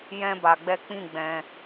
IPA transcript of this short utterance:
jɛ̃˦ ba˧ɡ͡bɛ˦ k͡pĩ˦˨ɡ͡bɛ̃˧

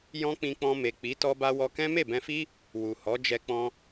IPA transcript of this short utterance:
jɔ̃˦k͡pĩ˧k͡pɔ̃˧ me˨k͡pi˨˦ tɔ˧ba˧wɔ˧kɛ̃˦ me˦˨bɛ̃˧fi˦ | wu˨hɔ˨˦ d͡ʒɛ˧ k͡pɔ̃˧

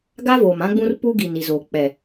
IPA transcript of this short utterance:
ɡa˦voː˨m ã˦ɡ͡bũ˦r pu˦ɡi˨n i˨zoː˨ k͡pɛ˨

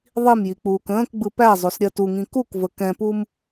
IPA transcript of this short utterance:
ðˤimjik͡puːk ə̃ːkɡ͡bɯ pæzˤosɾʲɜ tuŋĩ kukvə kɛ̃pum

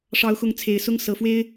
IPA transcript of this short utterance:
ʂɑ˨˦ʊ̯xʊ˨˦ŋ t͡sʰe˨˩ɪ̯sʊ˦ŋ sɤ˨˩fwe˦ɪ̯

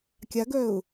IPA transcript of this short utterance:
kʲaɡœʊ̯

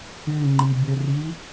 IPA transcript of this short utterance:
ɨŋ͡ǃibʲɵri

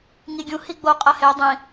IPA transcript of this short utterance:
ŋiɡʲũ hiɡ͡bo qʼɐhe dˤĩ

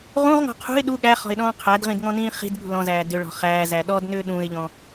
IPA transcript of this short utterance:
ʁũʁŋɔ̤ qʰṳɪ̯ ɗu ɠæχɔ̤ɪ̯ɗɔ̃ː qʰædʁĩdŋɔ̃nĩː χi̤dɠṳ lɔ̃zæː dʏɭɔ̤ χæːzæ ɗɔdnʏː ɗũɪ̯ʎɔ̃

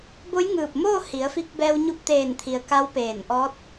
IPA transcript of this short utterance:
bo˧˥jŋɯː˧˩p̚moː˥˨ hi˩˧ə̯fi˧k̚bɛː˧w ɲu˧p̚t̪eː˧˩nt̪ʰi˩ə̯ ka˧˥wpeː˧˩n ʔɔː˧˥t̚

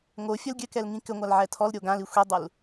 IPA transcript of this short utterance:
ŋo fʲɐlɡʲɘkɛl ŋĩkɘŋʷal ʕɛtʰɔlɾʲo ɡãli xʷidˤul

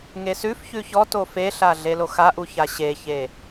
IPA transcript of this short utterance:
ŋesʉfçʉ çɔto feɬa ɮeloxaʔu çaɕeçe

